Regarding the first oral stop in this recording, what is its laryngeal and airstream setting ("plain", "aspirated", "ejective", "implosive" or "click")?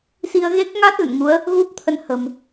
plain